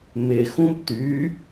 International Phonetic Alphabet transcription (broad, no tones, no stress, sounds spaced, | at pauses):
m ɪ x ũ b t y